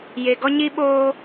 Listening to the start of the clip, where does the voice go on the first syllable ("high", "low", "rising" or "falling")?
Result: low